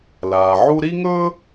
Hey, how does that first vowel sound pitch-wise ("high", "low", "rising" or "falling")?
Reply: low